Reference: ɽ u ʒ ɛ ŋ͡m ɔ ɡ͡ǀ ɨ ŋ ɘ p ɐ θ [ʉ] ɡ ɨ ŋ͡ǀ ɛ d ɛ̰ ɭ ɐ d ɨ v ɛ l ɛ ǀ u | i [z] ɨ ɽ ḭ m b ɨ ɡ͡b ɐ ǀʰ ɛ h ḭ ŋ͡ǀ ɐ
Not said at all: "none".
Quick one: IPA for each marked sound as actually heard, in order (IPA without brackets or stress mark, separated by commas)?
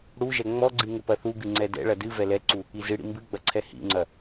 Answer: u, z